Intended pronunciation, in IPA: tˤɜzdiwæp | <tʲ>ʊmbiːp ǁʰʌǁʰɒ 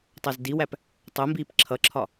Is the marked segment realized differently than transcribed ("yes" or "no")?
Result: yes